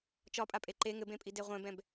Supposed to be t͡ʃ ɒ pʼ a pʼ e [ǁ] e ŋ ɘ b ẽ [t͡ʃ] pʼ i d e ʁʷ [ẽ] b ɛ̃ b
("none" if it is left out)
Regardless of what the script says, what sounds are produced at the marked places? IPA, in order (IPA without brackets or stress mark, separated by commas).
ǃ, none, ɛ̃